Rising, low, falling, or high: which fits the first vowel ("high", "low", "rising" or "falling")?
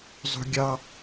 high